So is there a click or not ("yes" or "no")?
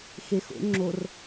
yes